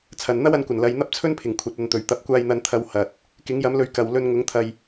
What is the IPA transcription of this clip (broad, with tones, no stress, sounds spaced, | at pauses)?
t͡sʰ ɐ˨ n n̪ ɐ˥ w ɐ˨˥ n kʷ ɐ˨˩ n l ɐ˨˧ j n̪ ɐ˥ p̚ t͡sʰ ɵ˥ n pʰ ɪ˨˩ ŋ kʷʰ ɐ˨˥ t̚ ɐ˨˧ n t̪ ɵ˨˩ ɥ t̪ ɐ˨˥ p̚ kʷ aː˧ j n̪ ɐ˧ n t̪ʰ ɐ˧ w h ɐ˨ t̚ | k ɪ˨˥ ŋ j ɐ˨˥ m l ɵ˨˥ ɥ k ɐ˨ w l ɵ˧ n ŋ ʊ˨˥ ŋ t̪ʰ ɐ˧ j